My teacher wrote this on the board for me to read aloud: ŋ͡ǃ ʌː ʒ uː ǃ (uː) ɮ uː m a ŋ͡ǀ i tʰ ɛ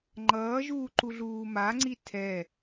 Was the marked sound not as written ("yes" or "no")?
yes